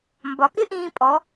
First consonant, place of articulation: labial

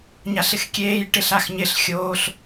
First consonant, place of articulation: palatal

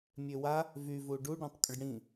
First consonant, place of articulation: labial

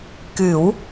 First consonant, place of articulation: velar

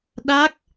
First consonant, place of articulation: alveolar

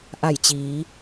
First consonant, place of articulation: glottal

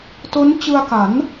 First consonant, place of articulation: alveolar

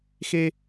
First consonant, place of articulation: velar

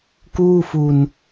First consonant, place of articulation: velar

